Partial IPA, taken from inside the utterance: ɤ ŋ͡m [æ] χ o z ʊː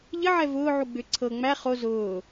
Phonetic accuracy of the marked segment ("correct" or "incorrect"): correct